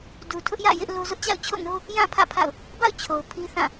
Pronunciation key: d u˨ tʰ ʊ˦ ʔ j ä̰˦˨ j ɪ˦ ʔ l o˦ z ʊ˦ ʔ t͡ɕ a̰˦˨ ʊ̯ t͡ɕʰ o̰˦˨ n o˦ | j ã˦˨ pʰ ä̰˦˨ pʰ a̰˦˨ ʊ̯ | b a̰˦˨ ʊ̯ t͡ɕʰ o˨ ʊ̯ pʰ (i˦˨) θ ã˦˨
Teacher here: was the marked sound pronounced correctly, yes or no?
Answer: no